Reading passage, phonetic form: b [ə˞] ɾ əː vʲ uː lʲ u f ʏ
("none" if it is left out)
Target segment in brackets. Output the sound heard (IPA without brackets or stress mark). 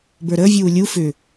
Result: ə˞